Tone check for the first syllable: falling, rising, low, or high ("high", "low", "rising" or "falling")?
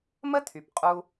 high